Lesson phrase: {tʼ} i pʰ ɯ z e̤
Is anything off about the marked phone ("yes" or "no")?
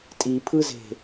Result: no